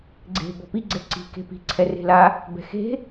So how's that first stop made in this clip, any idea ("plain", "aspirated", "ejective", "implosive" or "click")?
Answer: click